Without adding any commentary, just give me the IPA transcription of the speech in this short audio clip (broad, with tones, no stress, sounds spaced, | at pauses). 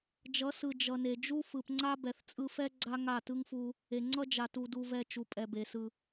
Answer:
d͡ʒ ʌ˨˦ s ɯ˨ d͡ʒ ʌ˨ n e˨ d͡ʒ u˦ f ɯ˨ p ŋ͡ǀ a˦ b ɛ˨ θ t͡sʼ ɯ˧ f ɛ˦ ɡ͡ǀ a˦ ŋ a˦˨ t ɯ˦ ŋ f u˧ | e˨ ŋ͡ǀ ʌ˦ d͡ʒ a˨ t u˨ d u˨ v ɛ˨ t͡ʃ u˨ pʼ ɛ˨ b e˨ s ɯ˨